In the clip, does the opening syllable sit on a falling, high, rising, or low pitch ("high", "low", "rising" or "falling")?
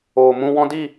low